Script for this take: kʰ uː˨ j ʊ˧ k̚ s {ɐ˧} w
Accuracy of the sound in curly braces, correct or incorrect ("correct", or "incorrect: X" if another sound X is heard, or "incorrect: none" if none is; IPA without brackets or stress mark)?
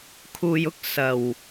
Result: incorrect: ɐ˨˩